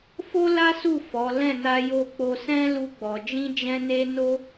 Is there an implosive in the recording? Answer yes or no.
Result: no